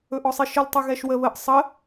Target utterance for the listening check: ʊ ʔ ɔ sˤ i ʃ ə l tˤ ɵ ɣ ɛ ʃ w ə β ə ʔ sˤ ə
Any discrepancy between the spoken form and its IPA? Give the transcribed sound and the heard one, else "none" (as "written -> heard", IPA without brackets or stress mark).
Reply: ʊ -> ɵ